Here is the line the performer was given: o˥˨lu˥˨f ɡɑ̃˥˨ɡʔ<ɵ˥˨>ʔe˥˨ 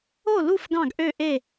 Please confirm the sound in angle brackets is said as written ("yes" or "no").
no